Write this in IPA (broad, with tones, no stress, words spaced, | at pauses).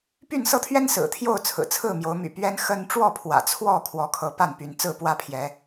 py˥˨nsɤ˦t̪ʰɥɛ˦n sɹ̩˨˩ t̪ʰjo˥˨ʊ̯t͡sʰɹ̩˨˩t͡sʰɹ̩˥˨mjo˨˦ʊ̯ my̰˨˩pɥɛ˦n xə˦n ʈ͡ʂwɔ˥˨pʰwä̰˨˩t͡sʰwɔ˥˨ kʰwɔ˨˦kʰɤ˨˦ pa˥˨npy˨˦n t͡sɹ̩˥˨pwä˥˨pʰjɛ˨˦